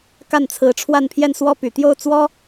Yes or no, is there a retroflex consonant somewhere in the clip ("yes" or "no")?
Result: yes